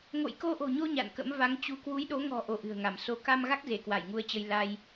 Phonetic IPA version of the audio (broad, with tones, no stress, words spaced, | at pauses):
ŋo̰˧˨jko˧ʔo̤˨˩ɲo˧ ɲa̰˧˨nkə̰˧˥m va˨˦ŋt͡ɕu˨˦ kwu˨˦jɗo˨˦ŋɔ̤˨˩ ʔo˧ʔɨ̤˨˩ə̯ŋa˧˩m so˧ ka˧mɣa˦˥k̚ ze˧˩kwa˧˩jŋu˧ə̯t͡ɕə˧j la˧j